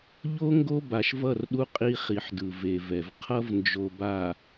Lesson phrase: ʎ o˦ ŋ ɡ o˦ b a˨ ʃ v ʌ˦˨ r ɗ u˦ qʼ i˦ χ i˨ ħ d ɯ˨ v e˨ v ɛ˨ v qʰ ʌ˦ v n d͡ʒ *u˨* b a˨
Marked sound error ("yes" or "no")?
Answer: yes